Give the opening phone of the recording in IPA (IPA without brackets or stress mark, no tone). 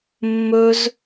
mː